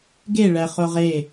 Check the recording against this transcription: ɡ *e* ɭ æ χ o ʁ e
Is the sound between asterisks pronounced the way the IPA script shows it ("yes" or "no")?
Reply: yes